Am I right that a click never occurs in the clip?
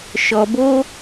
yes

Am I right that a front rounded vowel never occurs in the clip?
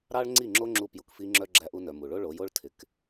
no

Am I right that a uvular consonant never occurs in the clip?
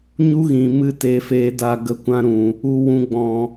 yes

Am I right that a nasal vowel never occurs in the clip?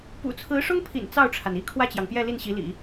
yes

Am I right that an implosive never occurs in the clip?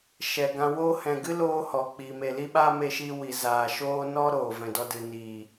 no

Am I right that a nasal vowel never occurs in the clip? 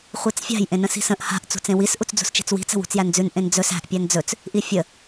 no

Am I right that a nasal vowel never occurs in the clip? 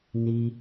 yes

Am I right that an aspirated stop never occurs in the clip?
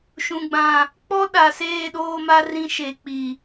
yes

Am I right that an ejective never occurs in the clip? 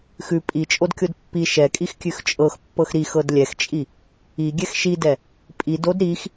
no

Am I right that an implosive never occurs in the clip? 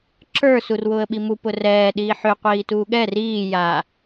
no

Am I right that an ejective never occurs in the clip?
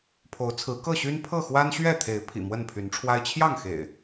yes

